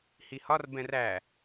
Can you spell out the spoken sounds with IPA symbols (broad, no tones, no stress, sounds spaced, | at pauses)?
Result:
h i h ɒ r b ɛ̃ r æ